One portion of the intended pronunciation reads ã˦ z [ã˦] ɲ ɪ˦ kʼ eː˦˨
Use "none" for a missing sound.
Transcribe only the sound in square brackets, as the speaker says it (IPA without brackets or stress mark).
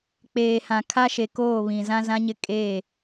ã˦